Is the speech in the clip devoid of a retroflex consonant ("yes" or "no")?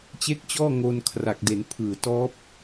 yes